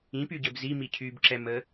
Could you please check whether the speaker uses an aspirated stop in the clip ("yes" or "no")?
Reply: yes